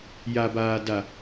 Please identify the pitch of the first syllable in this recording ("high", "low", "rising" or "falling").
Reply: low